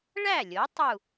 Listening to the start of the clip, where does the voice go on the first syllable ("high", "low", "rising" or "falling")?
falling